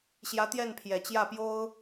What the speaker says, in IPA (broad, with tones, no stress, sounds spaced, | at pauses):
ɕ j ä˧˥ t̪ j ɛ˥˩ n pʰ j ɛ˨˩ t͡ɕ j ä˥˩ p j o˥ ʊ̯